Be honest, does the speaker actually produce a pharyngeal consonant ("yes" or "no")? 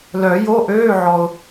yes